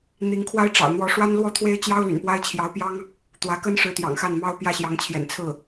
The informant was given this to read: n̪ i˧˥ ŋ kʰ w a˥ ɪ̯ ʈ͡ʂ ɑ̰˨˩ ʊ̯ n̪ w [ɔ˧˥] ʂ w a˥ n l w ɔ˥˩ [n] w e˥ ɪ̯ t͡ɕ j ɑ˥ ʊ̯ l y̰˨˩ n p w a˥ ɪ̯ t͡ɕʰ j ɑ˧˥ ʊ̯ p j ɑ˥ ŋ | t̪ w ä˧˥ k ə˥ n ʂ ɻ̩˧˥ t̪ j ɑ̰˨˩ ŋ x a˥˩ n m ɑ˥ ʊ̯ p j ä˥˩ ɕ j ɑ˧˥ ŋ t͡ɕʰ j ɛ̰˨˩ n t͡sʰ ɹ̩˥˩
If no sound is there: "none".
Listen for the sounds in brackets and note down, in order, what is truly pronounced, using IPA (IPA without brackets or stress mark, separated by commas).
ɔ˧˥, t̪ʰ